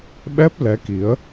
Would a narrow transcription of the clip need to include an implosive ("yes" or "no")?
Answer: yes